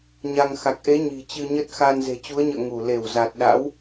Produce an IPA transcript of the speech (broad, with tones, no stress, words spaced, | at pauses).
ɲa˧ŋ xa˨˩k̚ʔe˨˦ ɲi̤˨˩t͡ɕɨ˧ɲə˦˥t̚ xa˧n ze̤˨˩t͡ɕu˨˦ə̯ɲə̰ː˧˨ ŋu˧˩ le˧˩wza˨˩t̚ɗa̰˧˥w